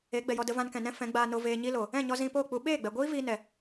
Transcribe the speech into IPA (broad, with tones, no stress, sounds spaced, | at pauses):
e˨˦ ɡ͡b ɛ˨ j ɔ˧ d ə˧ v ã˧ n k ɛ̃˨ n ɛ̃˦ f ɛ̃˨˦ ɡ͡b aː˧ n o˧ v eː˧ ɲ i˦ l o˨ | ɛ̃˦˨ ɲ ɔ˧ z ĩ˧ p oː˦˨ k͡p u˧ ɓ eː˦˨ ɡ͡b ɛ˨ ɡʷ iː˦ v iː˧ n ɛ˨